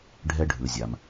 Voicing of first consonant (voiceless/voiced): voiced